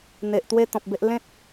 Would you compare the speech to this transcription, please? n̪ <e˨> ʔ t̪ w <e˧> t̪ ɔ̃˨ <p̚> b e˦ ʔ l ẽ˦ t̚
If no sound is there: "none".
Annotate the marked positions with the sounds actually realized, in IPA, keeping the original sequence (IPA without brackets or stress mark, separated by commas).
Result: e˨, e˦, p̚